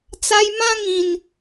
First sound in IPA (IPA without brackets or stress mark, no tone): t͡s